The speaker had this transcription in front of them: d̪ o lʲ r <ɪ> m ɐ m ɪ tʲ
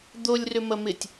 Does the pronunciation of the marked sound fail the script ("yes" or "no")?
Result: yes